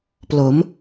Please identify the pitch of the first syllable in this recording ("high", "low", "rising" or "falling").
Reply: rising